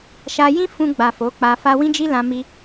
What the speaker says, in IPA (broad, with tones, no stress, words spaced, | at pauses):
ʃa˧ jĩ˦fũ˧ɡ͡ba˨ fo˨˦k͡pa˧fa˦ wĩ˦d͡ʒi˦ lã˧mi˧